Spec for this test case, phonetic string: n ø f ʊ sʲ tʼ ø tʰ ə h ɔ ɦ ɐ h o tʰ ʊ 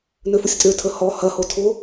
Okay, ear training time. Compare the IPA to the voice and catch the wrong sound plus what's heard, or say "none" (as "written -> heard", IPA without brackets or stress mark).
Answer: ɦ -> h